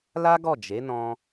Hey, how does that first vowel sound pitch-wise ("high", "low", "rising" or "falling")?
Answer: high